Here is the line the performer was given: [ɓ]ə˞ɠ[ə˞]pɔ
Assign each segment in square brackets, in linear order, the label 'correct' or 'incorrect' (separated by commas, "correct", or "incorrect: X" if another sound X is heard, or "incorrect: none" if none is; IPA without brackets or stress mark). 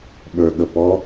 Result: correct, incorrect: ə